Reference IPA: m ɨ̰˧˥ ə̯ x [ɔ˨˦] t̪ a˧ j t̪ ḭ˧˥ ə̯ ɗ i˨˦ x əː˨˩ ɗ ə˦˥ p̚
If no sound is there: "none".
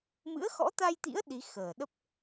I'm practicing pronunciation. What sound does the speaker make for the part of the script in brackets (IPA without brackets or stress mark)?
ɔ̰˧˥